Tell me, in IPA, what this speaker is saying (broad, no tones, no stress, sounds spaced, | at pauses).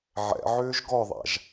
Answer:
ʕ ɛ̰ ʕ ʏː ʒ ɡ ɔ ðˤ a̰ ʒ